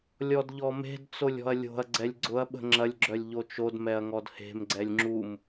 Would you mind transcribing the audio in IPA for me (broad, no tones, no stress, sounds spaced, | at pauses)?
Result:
lʲ ɔ d ʎ ɔ m e̤ d t͡s o lʲ ɔ̤ ɐ̯ lʲ o̤ ɐ̯ ɡ͡ǀ ɛ lʲ ɡ͡ǀ ʊ ɐ̯ ɓ ə̤ ŋ͡ǁ ɐ lʲ ɡ͡ǁ œ lʲ ʎ o t͡ʃ o d m ɛ ɐ̯ ŋ ɔ d h e̤ m ɡ͡ǀ ɛ lʲ ŋ͡ǁ u m